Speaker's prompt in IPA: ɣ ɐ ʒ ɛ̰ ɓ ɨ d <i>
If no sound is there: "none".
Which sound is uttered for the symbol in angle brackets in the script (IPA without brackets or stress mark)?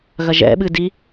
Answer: i